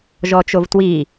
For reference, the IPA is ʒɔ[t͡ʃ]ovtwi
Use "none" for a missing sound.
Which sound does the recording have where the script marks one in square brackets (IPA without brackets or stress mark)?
t͡ʃ